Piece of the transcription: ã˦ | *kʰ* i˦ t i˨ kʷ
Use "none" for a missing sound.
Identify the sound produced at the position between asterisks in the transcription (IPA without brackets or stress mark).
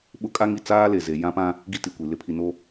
ɡ